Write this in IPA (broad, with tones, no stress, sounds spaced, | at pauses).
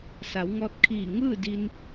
s a˩˧ w ŋ ɔː˧ t̚ kʰ iː˧˩ ŋ ɯː˥˨ d i˧ n